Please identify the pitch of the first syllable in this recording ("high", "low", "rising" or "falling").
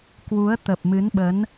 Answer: rising